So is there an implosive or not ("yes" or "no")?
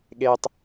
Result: yes